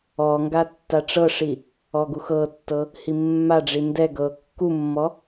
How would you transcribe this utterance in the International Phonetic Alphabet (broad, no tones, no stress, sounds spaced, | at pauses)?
ɔ ŋ ɡ a tː a ʈ͡ʂ ɤ ʂ i | ɔ ɡ u x ɤ tː ɤ | h i mː a ɖ͡ʐ i n d ɛ ɡ ɤ kː u mː ɔ